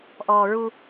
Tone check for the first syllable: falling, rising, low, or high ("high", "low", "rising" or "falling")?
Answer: low